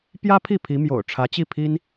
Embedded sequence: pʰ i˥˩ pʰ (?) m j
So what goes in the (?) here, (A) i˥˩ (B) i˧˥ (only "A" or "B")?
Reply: B